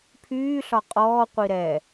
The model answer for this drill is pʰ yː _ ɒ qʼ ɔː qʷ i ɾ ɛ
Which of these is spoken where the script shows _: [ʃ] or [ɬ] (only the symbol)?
ɬ